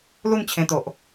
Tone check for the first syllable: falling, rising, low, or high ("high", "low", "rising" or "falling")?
falling